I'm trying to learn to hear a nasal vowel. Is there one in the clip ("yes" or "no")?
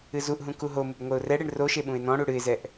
yes